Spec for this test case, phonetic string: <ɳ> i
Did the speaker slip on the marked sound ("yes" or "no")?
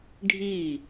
yes